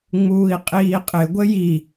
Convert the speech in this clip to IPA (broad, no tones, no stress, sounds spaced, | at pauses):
ŋ͡m uː i̯ qʼ iː qʼ ɪ ɡʷ ə j i